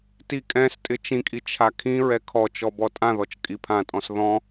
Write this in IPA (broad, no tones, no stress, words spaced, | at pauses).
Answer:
tikʼɛ̃stʼɪ t͡ʃĩkʼi t͡ʃʰakʰĩɹɛ kʰɔt͡ʃɔ bɔtʼãðɔt͡ʃ kʼipʰãtʼɔ̃s ðɔ̃